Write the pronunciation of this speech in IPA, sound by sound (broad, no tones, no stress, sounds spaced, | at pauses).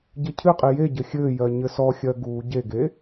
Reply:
ɟ ɘ cʰ ɨ qʼ i j e ɟ ɘ xʲ ɘː j ɜ ɲ ɘ s ɔ xʲ ɜ ɡ uː ɟ e ɡ e